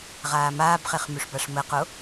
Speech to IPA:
ʁaːmaːbχeχ myʂbaʂməqo

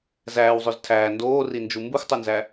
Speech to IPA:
zæːwzˤøz tʰæː ndoːrind͡ʒu mbɯxʷtˤunzæ

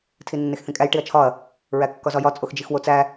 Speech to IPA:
tʰinːexθĩkʼæj ʈiɐ̯t͡ʃʰɒɐ̯ | ɹækːɒzɒjɒ t͡sʼoxd͡ʒixwot͡sæ

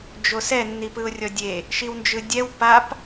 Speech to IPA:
d͡ʒosɛ nːipɯʊ̯rʲɔdʲe | ʃiwnd͡ʒɯdʲɛw pap

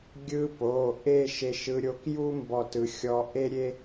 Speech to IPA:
ɡʲɯ˧po˩˧˩ ʔe˥˧ʃe˧ʃɯ˧ɾʲo˧ kju˥ mbɔ˥˧tɯ˧˥ xʲɔ˧ ʔe˥ɾʲe˥

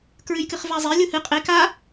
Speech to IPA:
kɹɨjkɨχvazˤe lʲuhɨ qʼek a

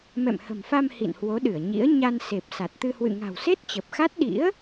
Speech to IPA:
mɛ̰˧˨mhə̤˨˩mfa˧m hḭ˧˨nhwo˨˦ɗɨ˧˩ə̯ɲḭ˧˥ə̯ ɲa˧n se˨˩p̚sa˨˩t̚t̪ɨ˧ hwɨ̰˧˨ŋa̤˨˩wse˦˥t̚ t͡ɕə˨˩p̚xa˦˥t̚ ɗḭ˧˥ə̯

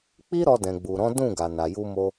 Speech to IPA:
k͡pi˦ɾɔ˧ dɛ̃˨ɡ͡bu˨ɾɔ̃˨˦ dũ˦˨ɡa˨ na˨ju˧mo˧

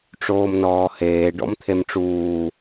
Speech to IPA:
ʈ͡ʂoːmnɔːheː ɖɔ̰mt̪ʰemʈ͡ʂuː

